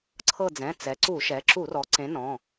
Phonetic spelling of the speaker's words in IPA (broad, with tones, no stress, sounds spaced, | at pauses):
ǀʰ ɤ˦˨ d͡z ɛ̃˩˧˩ t͡s ɛ˩˧ ǀ u˧˩˧ ʃ ɛ˩˧ ǁ u˧˩˧ r ɔ˩˧ ǀ ẽ˨˥ n ɔ̃˩˧˩